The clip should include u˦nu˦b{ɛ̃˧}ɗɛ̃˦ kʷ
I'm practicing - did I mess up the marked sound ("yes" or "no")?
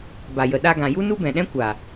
yes